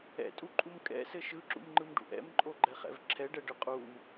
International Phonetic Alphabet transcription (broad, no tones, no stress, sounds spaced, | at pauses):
ɛ̰ tʼ u ǃʼ u m kʼ ɛ̰ s ɘ ʃ ɯ ǁ ṵ m ŋ͡ǃ ɯ m ɖ ṵ ʔ ɛ̰ m ǃʼ o ɡ͡ǃ ɛ χ ɛ̰ v ǁʰ ɛ ɖ ɛ ɖ ɯ qʼ u m